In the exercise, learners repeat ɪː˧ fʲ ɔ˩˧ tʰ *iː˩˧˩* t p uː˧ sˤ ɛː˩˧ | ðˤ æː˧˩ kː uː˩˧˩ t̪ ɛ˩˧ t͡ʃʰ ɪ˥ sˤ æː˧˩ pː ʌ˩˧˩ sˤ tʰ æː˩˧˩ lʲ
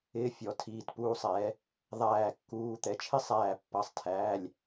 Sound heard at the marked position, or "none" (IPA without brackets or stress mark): iː˩˧˩